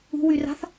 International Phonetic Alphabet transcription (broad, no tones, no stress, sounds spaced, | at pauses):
ṳ w y r a̤ θ